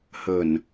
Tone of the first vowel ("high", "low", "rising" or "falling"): low